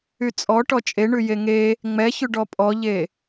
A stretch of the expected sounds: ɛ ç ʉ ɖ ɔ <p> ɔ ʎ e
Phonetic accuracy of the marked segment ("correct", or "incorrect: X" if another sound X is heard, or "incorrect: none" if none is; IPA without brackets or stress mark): incorrect: pʼ